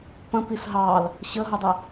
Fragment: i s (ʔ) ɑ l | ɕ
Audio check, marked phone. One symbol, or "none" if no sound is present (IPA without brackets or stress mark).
ɦ